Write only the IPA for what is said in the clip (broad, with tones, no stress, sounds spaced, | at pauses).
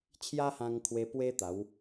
t͡ɕʰ j a˦ h ã˧ ŋ kʰ w e˧ p w e˦ t̪ a˨˦ w